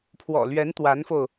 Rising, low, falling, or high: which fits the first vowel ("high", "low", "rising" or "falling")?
low